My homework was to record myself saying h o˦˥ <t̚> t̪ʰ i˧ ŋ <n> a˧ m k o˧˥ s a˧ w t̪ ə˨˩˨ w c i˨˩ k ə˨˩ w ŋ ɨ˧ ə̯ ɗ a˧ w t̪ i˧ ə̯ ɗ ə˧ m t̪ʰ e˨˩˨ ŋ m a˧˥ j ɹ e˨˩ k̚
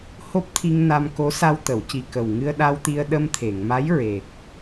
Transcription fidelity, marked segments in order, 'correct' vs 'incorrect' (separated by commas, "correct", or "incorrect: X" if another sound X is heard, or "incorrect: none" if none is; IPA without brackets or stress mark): incorrect: p̚, correct